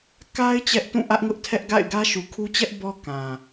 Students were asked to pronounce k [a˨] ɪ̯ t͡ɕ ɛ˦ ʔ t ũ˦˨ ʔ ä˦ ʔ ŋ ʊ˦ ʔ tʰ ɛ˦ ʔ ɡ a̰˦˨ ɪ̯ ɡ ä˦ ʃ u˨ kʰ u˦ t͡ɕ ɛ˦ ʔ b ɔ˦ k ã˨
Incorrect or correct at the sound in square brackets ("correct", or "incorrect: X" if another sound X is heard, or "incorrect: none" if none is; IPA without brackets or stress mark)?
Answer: incorrect: a˦